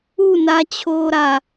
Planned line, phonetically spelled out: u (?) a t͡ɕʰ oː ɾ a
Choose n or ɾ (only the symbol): n